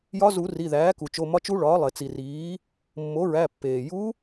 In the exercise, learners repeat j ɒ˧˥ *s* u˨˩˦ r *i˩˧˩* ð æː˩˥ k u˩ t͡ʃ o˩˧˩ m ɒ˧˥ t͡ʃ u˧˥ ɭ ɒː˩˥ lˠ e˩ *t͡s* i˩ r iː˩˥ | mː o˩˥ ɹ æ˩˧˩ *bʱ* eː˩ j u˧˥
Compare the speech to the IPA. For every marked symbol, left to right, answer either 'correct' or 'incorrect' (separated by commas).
incorrect, correct, correct, incorrect